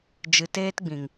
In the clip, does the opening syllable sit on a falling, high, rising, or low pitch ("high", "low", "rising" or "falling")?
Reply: low